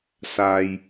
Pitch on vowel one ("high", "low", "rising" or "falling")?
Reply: low